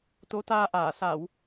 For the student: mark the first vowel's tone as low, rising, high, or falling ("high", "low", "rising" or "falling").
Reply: rising